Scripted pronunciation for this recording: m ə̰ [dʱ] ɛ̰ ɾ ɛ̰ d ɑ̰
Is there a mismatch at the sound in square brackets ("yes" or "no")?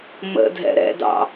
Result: no